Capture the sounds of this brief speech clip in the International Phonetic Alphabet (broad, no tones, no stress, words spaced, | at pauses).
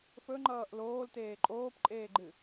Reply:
fɵŋ͡ǃʌːʔ loːlteː ǃʼoːpǃʼeːɡ͡ǃɨ